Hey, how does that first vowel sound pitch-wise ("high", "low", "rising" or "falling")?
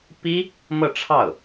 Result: high